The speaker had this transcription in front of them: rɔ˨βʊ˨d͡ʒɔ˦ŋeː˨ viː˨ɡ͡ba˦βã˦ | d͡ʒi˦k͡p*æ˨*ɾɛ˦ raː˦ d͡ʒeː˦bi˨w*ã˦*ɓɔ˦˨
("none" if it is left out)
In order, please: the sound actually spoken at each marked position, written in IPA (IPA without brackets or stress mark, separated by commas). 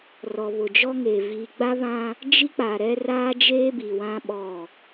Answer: a˨, ã˦